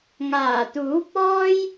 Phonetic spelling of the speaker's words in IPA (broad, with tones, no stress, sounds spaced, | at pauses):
ŋ aː˨˩ t̪ uː˨˥ p̚ ɔː˥ j